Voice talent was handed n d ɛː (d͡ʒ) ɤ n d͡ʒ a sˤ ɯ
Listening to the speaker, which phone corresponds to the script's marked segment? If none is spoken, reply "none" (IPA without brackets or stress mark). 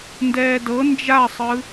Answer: d